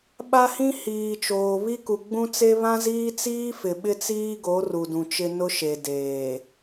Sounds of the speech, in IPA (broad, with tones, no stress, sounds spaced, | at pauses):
ɓ a˦ h ĩ˦ h iː˨ t͡ʃ oː˨ β i˦ k u˨ ɡ͡b ũ˦ t͡s e˦ β ã˦ z iː˦ t͡s iː˦ f ɪ˨ ɓ ɪ˦ t͡s iː˦ ɡ o˨˦ r u˨ d ũ˨ t͡ʃ ɪ˦ n ʊ˦ ʃ e˨ d eː˨